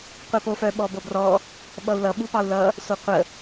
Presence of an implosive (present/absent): present